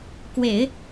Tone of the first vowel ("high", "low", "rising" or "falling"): low